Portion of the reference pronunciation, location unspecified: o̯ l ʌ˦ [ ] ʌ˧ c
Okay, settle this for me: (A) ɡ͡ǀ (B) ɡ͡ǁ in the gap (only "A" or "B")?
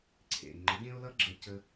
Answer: B